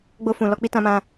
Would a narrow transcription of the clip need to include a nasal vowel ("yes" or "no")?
yes